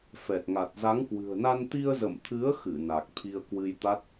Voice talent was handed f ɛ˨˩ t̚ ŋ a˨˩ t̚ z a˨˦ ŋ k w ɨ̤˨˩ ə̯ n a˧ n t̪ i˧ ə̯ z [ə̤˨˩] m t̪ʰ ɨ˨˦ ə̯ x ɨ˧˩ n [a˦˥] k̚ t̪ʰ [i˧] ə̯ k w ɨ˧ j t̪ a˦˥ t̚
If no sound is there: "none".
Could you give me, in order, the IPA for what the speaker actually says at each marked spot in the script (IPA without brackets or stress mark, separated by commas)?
ə̰˧˨, a˨˩, i˧